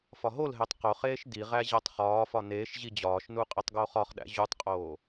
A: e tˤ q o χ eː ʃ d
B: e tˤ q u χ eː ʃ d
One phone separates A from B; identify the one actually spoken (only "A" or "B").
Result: A